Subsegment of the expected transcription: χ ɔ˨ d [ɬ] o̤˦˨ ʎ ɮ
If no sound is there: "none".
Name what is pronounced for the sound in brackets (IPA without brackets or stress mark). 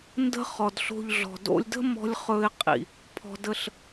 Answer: ɬ